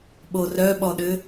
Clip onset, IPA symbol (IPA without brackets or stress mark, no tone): ɓ